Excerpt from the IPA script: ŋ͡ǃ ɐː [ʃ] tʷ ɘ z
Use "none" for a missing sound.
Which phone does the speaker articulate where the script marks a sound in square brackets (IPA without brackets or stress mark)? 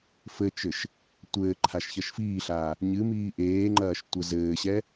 ʃ